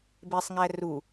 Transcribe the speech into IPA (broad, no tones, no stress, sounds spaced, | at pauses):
b e sˤ ŋ æ r u